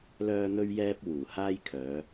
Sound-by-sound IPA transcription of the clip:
l œː˧ n̪ ɵ˧ ɥ j ɛː˧ p̚ w uː˨˩ h aː˥ j kʰ œː˨˧

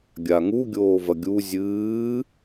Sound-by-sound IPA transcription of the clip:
ɡʲ a ŋ u ɡʲ oː v ɐ ɡʲ u zʲ ɨː

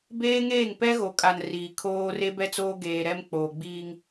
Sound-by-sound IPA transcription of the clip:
b eː˦ ŋ eː˦˨ ŋ p ɛ˦ ɣ o˨ kʼ a˨ n r iː˨ kʰ oː˦ r e˦ b ɛ˦ t͡s oː˦ ɡ eː˨ ɾ ɛ˦ m k͡p oː˨ ɡ͡b iː˦ ŋ

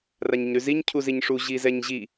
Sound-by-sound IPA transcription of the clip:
r a ɲ ə ɲ ɾ ʉ z i ɲ cʰ u z i ɲ ʂ u ʑ i z ɛ ɲ ʑ i

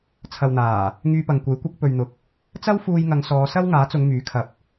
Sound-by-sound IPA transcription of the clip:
t͡sʰ ɐ˨ w n̪ aː˨˩ | ŋ yː˧ p ɐ˨ ŋ kʷ e˨˥ j kʷ ɪ˧ k̚ p ɵ˨ ɥ n̪ ʊ˨ k̚ | t͡s ɐ˥ w f uː˧ j ŋ ɐ˨˧ ŋ s ɔː˨˧ s ɐ˥ w ŋ aː˨˥ t͡s ʊ˨˧ ŋ m yː˨˥ kʰ ɐ˧ p̚

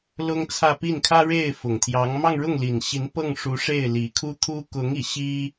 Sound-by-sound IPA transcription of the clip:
l ʊ˥ ŋ t͡sʰ ä˥˧ p i˥˩ n kʰ ä˥ ɻ e˥˩ ɪ̯ f ʊ˨˩ ŋ t̪ʰ j ɑ˧˥ ŋ m ɑ˥˧ ŋ ɻ ʊ˥˩ ŋ l i˨˩ n ɕ i˧˥ n p ɤ˥˩ ŋ ʂ u˧˥ ʂ e˥˩ ɪ̯ l i˨˩ kʰ u˥ t̪ʰ u˥ k ʊ˧˥ ŋ i˨˩ ɕ i˥

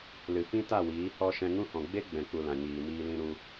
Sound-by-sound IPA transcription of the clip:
l ɨ˨ f ĩ˦ t a˦˨ w iː˨˦ h ɔ˧ ʃ ɛ̃˧ ŋ ũ˦ h ɔ̃˨ ɡ͡b e˦ ɡ͡b ɛ̃˨ k͡p u˨ l ã˨ ɲ iː˨ m iː˧ l ĩ˧ ɾ u˧

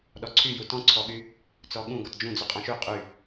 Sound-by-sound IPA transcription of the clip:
ɗ ɔ ǀʰ y j u t ɔ̃ ǀʰ ɔ ɠ y | t͡s ɔ ɠ ũ ɡ ɔ t d͡ʒ ũ d͡z y qʼ ɔ̃ ʃ y qʼ y

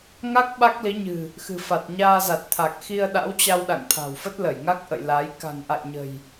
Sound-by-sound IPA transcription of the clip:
ŋ a˦˥ k̚ ɓ a˦˥ k̚ l i˨˦ ɲ ɨ̤˨˩ | x ɨ̤˨˩ f a˨˩ t̚ ɲ aː˧ z a˨˩ t̚ t̪ʰ a˨˩ k̚ x i˧ ə̯ ɗ a̰˧˥ w t͡ɕ a˧ w ɗ a̰˧˨ ŋ t̪ʰ a̤˨˩ w f ə˦˥ t̚ l ə˧˩ j ŋ a˦˥ k̚ ʔ ə̰˧˨ j l a˨˦ j k a̤˨˩ ŋ ʔ a̰˧˨ j ɲ ə̤˨˩ j

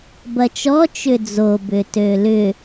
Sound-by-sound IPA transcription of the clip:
b ɐ t͡ʃ ɔ t͡ʃ ʏ d͡z o b ʏ t ø l ʏ

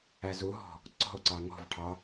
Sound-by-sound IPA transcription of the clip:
æ z u ɦ ɔ̤ | ǀ ɔ̤ o̯ ǀ ɑ ŋ ɔ̤ v ʈʰ ɑ

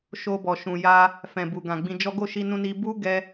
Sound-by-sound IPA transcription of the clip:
ʃ o˧ b ɔ˨ ʃ ũ˨ j a˧ | f ɛ̃˨ b u˨ ɡ ã˨ ɡ͡b ĩ˧ d͡ʒ ɔ˦ ɡ o˦˨ ʃ i˧ n ũ˧ n i˧ b u˦ ɡ ɛ˧

